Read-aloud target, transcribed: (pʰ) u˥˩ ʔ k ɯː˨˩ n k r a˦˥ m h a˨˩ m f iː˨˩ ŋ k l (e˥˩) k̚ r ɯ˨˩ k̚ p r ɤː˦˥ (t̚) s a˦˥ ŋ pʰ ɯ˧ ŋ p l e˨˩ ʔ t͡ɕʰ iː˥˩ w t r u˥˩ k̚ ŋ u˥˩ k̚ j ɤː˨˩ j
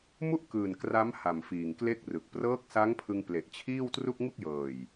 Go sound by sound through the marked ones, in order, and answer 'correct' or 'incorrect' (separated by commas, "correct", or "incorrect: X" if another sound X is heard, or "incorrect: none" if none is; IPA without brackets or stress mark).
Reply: incorrect: m, correct, incorrect: k̚